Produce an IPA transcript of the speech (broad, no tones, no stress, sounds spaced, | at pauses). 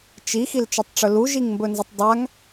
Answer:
t͡ʃ i x i l t͡ʃ ɵ tˤ ʈ͡ʂ ɵ l u ʒ i ŋ m b ɵ n z e tˤ dˤ a ŋ